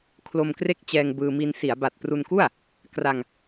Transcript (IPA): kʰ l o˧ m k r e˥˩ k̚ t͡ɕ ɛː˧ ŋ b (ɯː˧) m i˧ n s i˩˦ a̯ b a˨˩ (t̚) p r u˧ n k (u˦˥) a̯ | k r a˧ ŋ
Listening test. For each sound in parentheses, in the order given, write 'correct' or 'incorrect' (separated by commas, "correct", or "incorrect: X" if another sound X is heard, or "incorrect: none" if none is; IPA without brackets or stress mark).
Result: correct, correct, incorrect: u˥˩